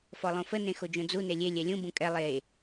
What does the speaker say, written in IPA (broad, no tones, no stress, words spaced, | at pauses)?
fɔlˠõfə nẽxod͡ʒõd͡zu nelʲe lʲɛlʲũ bũkʼɛ lˠe